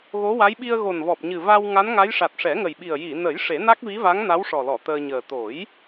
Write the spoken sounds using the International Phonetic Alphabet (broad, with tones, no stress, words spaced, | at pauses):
ɣo˧˥wa˧˥j ɓi˧ə̯ɣo˨˩nvɔ˨˩p̚ɲɨ˨˩ va˧w ŋa˧˥nŋa˧˥jʂa˨˩t̚ ʂɛ˨˩˦ŋə˨˩jɓi˨˩ə̯ ji˨˩˨nə˨˩˦j ʂe˨˩˦ na˦˥k̚vi˧˥va˧˥ŋna˧˥w ʂɔ˨˩lɔ˨˩˨ t̪əː˧ɲəː˨˩ t̪o˨˩˦j